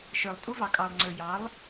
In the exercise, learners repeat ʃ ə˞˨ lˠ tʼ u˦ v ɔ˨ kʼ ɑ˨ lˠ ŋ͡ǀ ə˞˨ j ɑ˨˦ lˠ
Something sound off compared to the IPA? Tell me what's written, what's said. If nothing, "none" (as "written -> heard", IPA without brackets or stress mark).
ɔ˨ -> ɑ˨